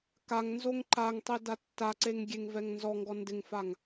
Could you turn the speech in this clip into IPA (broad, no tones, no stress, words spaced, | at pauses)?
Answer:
kaŋnzoŋ ǃaŋtˤe datːaǀeŋ ɡʲeŋvɛŋnzɔŋɡɔ ndɪŋfaŋ